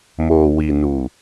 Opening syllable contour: low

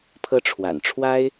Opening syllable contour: high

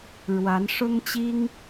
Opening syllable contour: rising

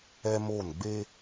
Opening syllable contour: high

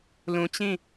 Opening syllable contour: low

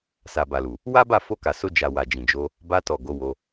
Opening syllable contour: low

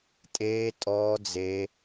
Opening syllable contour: high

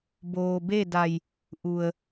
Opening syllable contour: low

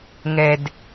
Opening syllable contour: low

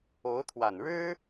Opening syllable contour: rising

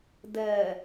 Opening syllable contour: low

